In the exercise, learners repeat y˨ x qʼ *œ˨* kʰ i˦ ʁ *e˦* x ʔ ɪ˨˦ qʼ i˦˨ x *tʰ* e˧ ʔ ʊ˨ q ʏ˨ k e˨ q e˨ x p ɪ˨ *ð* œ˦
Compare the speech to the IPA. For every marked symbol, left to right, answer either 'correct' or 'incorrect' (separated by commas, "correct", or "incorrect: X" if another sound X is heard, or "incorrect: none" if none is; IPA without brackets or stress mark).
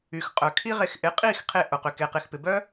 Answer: correct, incorrect: e˧, incorrect: qʰ, incorrect: b